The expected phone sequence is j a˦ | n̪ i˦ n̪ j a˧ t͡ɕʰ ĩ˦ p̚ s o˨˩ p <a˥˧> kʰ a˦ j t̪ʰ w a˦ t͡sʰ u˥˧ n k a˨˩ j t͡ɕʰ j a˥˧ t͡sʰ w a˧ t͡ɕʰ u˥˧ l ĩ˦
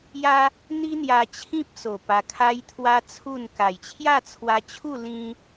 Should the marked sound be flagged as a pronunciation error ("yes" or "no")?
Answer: yes